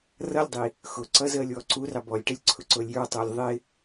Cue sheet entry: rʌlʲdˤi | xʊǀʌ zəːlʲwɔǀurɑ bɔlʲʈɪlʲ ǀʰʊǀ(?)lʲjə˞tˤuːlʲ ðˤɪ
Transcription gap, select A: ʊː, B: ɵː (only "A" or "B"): A